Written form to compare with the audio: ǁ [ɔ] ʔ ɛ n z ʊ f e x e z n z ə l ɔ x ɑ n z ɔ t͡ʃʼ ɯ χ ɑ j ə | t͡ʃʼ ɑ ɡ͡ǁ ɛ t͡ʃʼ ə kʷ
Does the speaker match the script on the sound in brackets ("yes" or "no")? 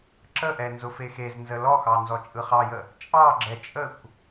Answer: no